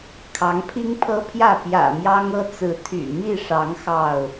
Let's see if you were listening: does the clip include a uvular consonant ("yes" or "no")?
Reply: no